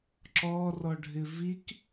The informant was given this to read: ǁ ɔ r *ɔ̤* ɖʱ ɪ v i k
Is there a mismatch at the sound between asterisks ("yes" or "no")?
yes